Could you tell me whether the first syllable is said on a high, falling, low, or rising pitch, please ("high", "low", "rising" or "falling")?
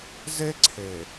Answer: high